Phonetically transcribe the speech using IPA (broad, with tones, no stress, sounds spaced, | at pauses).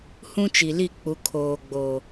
h ũ˦ t͡ʃ i˨ l i˦˨ k͡p u˨˦ kʰ oː˨ ɡ͡b o˨